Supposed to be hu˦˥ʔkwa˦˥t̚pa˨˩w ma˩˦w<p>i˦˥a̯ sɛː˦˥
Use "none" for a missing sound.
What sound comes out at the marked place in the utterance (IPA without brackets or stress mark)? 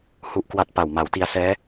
t